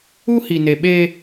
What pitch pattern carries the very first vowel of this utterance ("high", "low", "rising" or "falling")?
high